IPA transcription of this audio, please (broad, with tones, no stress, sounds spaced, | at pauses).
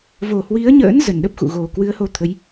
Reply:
v o˨˩ h w i˨˦ ə̯ ɲ ə̰ː˧˥ n z ə˨˩ n ɗ ə˦˥ p̚ x ṵ˧˨ ɣ o˨˩ k w ɨ˨˦ ə̯ h o˧ t̪ʰ ə˨˦ j